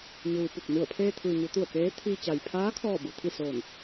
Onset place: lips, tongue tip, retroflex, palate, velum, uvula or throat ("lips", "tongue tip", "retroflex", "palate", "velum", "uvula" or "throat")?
palate